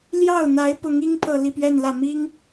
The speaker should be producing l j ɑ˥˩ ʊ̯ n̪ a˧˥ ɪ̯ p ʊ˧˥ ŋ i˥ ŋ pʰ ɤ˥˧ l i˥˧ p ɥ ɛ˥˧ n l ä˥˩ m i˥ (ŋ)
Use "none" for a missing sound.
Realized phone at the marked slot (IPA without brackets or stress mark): ŋ